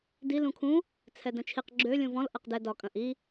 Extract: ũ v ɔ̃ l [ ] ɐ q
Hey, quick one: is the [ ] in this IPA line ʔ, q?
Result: ʔ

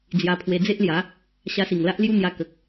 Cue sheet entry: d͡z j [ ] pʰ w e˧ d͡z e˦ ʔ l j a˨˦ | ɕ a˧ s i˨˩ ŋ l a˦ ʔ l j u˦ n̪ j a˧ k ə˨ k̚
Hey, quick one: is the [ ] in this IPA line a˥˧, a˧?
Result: a˧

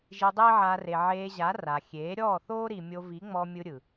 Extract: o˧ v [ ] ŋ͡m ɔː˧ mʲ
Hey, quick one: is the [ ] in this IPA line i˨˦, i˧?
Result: i˨˦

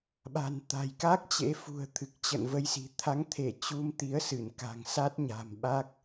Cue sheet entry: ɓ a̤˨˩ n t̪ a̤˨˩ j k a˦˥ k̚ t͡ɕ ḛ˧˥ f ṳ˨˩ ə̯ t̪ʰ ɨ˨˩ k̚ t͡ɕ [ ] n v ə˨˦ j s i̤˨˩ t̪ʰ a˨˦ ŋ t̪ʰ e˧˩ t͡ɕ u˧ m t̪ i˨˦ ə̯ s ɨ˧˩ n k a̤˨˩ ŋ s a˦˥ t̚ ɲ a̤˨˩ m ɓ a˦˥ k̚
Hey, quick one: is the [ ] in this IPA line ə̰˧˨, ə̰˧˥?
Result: ə̰˧˨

